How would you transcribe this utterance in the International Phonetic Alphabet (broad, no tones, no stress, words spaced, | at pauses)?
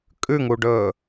kʼʉŋuɖɵː